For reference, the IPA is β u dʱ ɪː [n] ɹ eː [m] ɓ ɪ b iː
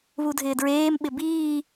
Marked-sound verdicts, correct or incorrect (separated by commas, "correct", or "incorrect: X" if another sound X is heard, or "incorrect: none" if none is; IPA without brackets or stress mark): incorrect: d, correct